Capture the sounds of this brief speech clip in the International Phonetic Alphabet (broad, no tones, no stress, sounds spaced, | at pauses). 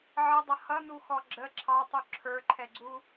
ʕ ə dˤ ʌ h ʌ n u x ɔ ɡ͡ǁ ə ǁʰ ɑ tˤ u ǁʰ ə˞ ǃʰ ɛ ɡ͡ǀ u